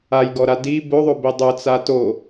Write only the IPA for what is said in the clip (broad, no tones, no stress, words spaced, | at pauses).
ajɡɔɾa di boðˤobi dˤʊt͡sa to